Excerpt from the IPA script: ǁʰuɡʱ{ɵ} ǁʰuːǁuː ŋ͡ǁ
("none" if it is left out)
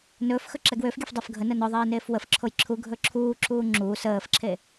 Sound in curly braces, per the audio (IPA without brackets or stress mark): ɵ